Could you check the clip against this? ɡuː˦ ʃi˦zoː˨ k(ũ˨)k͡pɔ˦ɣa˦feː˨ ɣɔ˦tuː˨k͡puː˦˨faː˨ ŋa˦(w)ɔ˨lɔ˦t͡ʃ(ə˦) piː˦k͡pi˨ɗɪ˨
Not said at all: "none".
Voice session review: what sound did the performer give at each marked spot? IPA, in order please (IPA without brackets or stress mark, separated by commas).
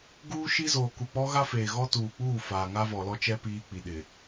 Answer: u˨, v, ɛ˦